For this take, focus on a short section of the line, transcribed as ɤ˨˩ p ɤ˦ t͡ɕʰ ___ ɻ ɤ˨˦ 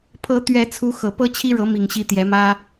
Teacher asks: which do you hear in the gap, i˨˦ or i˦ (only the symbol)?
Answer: i˦